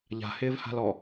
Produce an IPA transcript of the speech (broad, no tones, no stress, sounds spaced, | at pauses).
ʎ a̤ h ɪː v h a̤ l ɔ